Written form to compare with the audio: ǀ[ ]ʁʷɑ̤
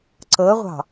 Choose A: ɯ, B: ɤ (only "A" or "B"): B